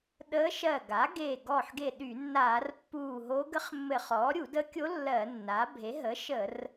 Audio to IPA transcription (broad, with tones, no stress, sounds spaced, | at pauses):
ɗ əː˧˥ ʃ ɜ˧˩ ɡ a˩˥ ɡ eː˧˩ ɡ ɔ˧˩ ħ ɡ e˧˩ ɗ y˧˩˧ nː aː˧˩˧ r pː uː˧˩ ɦ o˧˥ ɡ ə˧˥ χ mː ɘ˧˩˧ χ ɔː˩˥ ɾʲ u˧˩˧ d ə˧˥ kʲ o˧˥ lː ɜ˧˩˧ nː a˩˥ bʱ e˩˥ ɦ ə˩˥ ʃ ə˧˩˧ r